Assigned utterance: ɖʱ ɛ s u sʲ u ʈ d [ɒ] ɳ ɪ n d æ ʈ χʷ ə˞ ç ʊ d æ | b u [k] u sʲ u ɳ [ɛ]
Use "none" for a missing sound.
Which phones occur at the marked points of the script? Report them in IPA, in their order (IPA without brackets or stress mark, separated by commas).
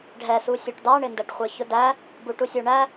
ɑ, ʈ, æ